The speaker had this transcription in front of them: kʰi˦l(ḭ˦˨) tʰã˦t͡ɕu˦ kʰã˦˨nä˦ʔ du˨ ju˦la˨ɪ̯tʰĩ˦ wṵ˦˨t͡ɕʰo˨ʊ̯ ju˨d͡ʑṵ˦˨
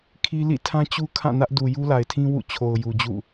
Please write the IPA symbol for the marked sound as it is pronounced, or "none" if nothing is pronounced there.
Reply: ḭ˦˨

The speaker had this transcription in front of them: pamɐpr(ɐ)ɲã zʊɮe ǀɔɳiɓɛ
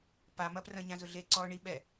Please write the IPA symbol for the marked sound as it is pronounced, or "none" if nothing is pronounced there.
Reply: ɐ̃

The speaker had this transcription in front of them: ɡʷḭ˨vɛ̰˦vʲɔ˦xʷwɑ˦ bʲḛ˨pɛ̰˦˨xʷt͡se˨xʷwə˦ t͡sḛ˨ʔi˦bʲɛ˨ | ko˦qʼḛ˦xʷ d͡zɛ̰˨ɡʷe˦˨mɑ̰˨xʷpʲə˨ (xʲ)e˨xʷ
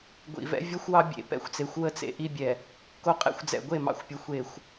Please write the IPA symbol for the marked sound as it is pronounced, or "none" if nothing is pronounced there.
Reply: xʷ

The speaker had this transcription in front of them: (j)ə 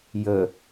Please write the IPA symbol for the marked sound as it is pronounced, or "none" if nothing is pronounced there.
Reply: j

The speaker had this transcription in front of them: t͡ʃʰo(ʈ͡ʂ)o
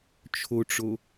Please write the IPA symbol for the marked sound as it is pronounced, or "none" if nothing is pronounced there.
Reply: ʈ͡ʂ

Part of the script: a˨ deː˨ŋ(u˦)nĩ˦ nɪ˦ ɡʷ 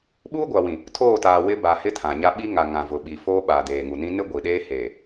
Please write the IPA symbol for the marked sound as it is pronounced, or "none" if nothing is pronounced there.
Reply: u˨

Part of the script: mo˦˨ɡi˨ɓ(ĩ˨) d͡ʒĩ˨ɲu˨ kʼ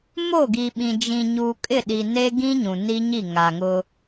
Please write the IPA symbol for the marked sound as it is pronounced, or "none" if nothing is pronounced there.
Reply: ĩ˨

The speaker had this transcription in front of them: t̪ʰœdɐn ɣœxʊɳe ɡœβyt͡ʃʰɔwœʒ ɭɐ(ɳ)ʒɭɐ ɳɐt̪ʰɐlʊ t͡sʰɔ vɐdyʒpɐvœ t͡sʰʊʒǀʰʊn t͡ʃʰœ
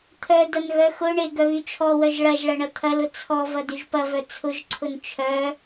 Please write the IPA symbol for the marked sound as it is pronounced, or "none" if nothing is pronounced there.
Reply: none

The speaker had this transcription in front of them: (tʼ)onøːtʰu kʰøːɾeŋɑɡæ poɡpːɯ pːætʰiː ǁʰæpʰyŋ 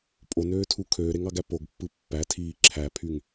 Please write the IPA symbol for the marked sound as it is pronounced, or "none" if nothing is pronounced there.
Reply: pʼ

